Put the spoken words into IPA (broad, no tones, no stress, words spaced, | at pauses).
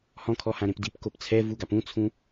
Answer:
hɔ̃kʰɔhãɾẽp dipkop t͡sʰɛvuɡap ũt͡sʰũ